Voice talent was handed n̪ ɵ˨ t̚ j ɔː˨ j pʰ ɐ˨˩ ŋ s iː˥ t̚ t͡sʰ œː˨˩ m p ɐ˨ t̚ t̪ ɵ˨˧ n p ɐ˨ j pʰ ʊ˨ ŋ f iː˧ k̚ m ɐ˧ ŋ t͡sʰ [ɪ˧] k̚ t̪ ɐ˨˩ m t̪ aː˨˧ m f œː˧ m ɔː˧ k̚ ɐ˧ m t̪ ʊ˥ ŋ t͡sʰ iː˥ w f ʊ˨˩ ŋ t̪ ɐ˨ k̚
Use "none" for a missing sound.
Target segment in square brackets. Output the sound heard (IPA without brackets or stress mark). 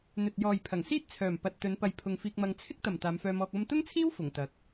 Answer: ɪ˥